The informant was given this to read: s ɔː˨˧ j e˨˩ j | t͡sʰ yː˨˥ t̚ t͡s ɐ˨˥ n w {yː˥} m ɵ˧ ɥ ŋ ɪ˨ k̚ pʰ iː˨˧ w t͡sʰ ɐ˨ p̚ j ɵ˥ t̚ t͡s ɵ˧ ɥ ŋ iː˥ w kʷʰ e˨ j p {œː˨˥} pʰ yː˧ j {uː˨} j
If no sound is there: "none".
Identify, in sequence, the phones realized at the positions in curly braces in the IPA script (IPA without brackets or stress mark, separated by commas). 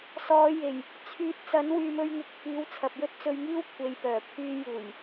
yː˨, œː˨˩, uː˨˩